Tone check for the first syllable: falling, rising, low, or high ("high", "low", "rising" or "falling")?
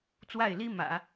falling